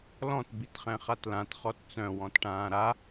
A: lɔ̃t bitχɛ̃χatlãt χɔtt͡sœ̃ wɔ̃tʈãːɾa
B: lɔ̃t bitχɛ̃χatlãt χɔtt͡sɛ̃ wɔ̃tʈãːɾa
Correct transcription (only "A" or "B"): A